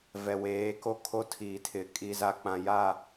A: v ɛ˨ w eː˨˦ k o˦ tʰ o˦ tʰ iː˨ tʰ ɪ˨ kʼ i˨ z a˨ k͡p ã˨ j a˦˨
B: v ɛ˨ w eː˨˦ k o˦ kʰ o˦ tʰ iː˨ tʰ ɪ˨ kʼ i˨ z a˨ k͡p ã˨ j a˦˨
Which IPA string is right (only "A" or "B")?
B